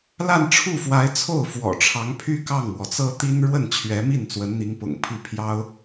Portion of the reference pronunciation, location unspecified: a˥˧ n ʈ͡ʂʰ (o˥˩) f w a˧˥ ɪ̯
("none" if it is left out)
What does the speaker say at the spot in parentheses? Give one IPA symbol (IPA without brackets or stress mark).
u˥˩